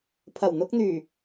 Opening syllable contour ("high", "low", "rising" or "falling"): low